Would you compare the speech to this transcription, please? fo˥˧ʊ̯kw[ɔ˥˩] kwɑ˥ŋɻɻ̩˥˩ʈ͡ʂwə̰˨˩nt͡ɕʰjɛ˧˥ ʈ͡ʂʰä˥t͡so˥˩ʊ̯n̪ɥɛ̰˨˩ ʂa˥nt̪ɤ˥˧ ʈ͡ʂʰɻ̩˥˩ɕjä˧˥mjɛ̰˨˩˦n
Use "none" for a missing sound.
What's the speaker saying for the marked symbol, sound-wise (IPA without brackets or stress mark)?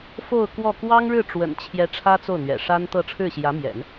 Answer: ɔ˥˩